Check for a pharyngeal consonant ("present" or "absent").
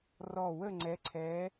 absent